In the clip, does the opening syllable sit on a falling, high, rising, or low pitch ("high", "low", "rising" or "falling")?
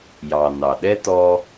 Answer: low